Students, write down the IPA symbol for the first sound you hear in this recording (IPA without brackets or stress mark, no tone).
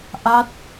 ʔ